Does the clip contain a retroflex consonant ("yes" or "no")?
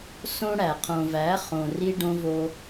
yes